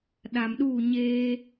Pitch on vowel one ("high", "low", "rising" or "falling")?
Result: low